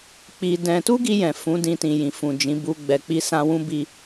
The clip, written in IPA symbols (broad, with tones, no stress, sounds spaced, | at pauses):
k͡p i˧ d ɛ̃˧ t u˦ ɡ i˧ j ɛ̃˨ f ũ˨˦ d ĩ˧ t ĩ˨ j ĩ˨ f ũ˨ d͡ʒ ĩ˨˦ b u˧ ɡ͡b ɛ˨ k͡p i˧ s ã˧ w ũ˦ b i˧